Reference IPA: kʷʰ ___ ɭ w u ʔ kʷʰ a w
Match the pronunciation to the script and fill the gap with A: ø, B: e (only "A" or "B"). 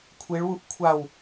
B